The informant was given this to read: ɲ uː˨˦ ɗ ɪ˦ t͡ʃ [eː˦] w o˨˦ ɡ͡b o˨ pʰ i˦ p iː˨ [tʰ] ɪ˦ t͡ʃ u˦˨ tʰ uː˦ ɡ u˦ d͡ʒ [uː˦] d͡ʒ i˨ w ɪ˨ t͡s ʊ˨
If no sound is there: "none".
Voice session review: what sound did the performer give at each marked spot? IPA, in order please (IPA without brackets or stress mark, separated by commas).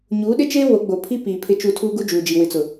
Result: eː˦, pʰ, uː˨